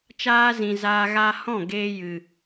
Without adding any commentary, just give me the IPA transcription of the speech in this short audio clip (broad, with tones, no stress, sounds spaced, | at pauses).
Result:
t͡ʃ aː˦ z ĩ˨ z aː˧ ɣ a˧ h ɔ̃˦˨ ɡ eː˧ j ɨ˨